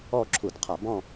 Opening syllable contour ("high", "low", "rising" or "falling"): falling